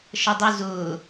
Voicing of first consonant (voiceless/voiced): voiceless